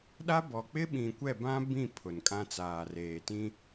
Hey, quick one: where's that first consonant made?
tongue tip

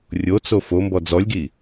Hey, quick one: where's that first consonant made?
tongue tip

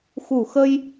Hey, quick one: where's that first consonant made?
velum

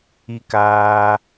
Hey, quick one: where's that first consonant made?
velum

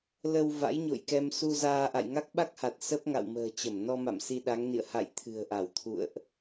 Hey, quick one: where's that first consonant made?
tongue tip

